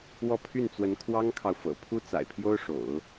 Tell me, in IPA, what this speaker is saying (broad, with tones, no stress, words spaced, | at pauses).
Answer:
wɔ˥˧ pʰy˥˩nt͡swə˧˥n kʰwɑ˥ŋkʰɑ˨ʊ̯fɤ̰˨˩ pʰu˥ t͡sa̰˨˩ɪ̯pʰjo˥ʊ̯ʂo̰˨˩˦ʊ̯